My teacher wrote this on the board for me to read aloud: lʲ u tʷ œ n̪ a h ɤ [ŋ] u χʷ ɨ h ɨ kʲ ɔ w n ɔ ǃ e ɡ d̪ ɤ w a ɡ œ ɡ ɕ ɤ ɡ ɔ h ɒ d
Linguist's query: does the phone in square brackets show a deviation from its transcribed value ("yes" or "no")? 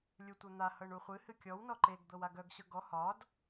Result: yes